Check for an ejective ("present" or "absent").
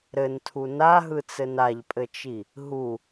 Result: present